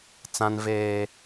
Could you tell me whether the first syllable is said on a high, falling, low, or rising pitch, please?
high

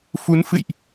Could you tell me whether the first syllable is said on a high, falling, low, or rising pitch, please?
rising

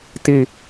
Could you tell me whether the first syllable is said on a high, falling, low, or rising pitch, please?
low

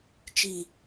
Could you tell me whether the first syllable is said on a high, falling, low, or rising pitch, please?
low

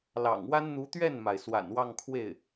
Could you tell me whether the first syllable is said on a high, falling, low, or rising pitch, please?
low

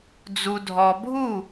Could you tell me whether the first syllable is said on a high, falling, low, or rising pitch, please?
low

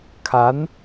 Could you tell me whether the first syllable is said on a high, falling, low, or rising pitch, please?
rising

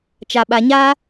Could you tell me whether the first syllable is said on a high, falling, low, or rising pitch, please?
low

